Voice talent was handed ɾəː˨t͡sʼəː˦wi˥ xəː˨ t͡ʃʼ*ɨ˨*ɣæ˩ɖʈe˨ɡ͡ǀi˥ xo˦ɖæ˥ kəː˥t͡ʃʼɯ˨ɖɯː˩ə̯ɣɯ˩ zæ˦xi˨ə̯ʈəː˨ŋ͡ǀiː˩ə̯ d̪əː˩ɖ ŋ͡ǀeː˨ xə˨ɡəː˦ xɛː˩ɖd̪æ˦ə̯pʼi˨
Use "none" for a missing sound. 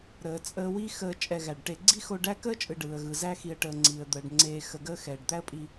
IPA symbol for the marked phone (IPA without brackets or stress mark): ɛ˨